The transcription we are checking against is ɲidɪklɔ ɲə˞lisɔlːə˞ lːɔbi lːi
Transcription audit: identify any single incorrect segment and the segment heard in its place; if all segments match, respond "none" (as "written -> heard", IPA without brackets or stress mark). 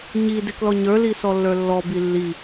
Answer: none